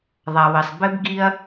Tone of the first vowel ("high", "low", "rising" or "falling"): low